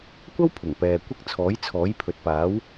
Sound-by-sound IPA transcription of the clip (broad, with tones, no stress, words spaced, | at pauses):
kʷɐ˥w pʰʊ˨˩ŋpɛː˨kʷɪ˥k̚ t͡sʰɔː˨˥jt͡sʰɔː˨˥jpʰɵ˨t̚ paː˨˥w